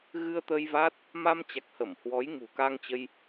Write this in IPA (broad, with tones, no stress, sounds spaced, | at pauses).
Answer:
ɣ ɨ˧ ə̯ t̪ ə˧ j v a˦˥ t̚ | m a˧ m t͡ɕ a˨˩ k̚ h ə˧˩ m h w ɔ˨˦ j ŋ ṳ˨˩ k a˧ ŋ t͡ɕ ə˧ j